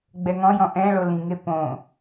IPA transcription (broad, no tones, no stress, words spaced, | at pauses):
ɡ͡bɛŋɔ̃jɔ̃ ʔɛ̃ɭo lĩŋe põ